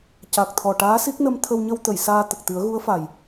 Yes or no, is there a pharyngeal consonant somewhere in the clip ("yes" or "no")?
no